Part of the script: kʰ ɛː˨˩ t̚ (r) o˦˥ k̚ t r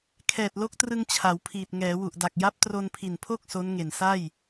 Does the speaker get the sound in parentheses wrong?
yes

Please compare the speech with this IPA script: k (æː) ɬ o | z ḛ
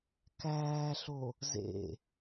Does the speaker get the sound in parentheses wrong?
no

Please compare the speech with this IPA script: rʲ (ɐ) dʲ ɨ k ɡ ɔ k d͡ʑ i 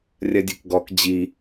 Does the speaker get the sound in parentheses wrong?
no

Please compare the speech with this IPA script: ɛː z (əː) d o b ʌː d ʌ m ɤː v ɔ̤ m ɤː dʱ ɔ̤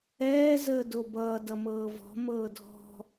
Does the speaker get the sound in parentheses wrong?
no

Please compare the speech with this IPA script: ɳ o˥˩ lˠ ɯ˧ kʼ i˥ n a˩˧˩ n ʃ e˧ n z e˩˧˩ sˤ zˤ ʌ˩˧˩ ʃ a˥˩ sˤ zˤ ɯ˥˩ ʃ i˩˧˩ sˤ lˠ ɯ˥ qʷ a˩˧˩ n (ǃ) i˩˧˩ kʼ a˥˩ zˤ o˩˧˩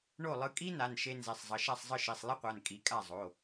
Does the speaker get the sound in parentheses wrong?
yes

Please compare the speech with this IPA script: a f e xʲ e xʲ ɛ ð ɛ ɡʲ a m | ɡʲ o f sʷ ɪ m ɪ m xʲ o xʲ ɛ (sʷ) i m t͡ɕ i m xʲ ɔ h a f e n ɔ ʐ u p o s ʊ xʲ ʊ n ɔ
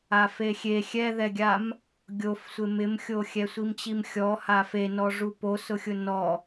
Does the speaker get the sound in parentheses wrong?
no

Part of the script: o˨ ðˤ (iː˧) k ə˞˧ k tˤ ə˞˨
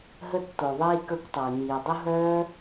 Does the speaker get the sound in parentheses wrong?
no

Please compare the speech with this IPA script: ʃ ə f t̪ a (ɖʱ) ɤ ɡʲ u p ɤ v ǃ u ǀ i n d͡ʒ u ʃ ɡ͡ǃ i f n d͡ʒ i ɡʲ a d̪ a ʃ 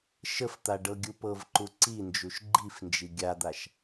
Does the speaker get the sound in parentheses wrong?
yes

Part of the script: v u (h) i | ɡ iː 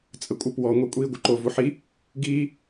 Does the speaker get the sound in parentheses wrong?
yes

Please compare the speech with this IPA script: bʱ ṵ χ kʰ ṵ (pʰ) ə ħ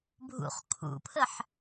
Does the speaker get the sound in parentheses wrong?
no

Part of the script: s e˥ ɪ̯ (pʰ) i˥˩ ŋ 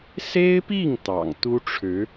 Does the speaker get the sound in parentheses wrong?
yes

